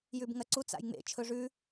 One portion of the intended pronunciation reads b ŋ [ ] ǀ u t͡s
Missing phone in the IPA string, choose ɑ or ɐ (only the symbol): ɐ